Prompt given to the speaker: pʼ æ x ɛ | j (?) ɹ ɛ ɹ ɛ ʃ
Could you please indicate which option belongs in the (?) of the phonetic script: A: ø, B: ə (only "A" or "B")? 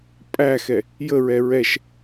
B